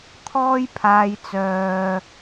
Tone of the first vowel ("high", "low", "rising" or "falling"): high